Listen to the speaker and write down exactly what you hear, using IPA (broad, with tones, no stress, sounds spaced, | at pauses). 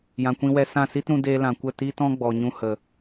j ã˨ kʷ ĩ˧ w ɛ˧ s ã˦˨ s i˦ t ɾ ũ˧ d eː˧ l ã˨ kʷ ə˦˨ t iː˦ t ɔ̃˦ ɡ͡b ɔ˨ ɲ ũ˧ h ə˨